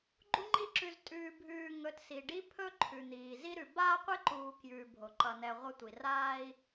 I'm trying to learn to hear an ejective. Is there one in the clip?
yes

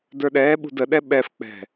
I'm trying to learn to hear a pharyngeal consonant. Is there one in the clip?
no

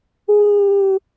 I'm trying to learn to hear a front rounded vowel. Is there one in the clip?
no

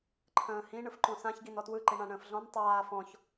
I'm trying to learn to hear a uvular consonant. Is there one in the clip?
no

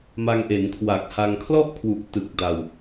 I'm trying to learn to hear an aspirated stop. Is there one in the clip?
yes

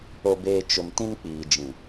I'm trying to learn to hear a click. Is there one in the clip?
no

